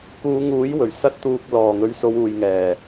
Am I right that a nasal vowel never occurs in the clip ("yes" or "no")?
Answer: yes